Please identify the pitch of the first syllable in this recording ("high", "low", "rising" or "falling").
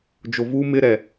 low